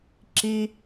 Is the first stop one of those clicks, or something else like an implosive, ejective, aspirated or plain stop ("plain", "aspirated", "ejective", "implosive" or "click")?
click